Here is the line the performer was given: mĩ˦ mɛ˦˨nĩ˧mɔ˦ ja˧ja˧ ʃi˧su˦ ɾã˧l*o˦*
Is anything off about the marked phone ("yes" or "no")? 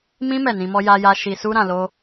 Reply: no